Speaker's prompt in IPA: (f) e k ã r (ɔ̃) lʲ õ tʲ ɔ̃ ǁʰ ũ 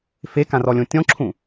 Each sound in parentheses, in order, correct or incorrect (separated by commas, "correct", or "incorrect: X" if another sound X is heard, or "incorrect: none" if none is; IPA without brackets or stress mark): correct, incorrect: ɔ